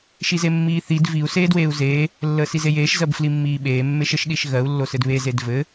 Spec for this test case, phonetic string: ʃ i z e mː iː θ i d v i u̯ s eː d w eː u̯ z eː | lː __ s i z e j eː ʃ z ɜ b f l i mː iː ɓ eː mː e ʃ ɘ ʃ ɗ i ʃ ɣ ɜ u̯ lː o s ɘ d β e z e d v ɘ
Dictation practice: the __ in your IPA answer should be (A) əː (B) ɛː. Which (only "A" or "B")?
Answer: A